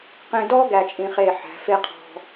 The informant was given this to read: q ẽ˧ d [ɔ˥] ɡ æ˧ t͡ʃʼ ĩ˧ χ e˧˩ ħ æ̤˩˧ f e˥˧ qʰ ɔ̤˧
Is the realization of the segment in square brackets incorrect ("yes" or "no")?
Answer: no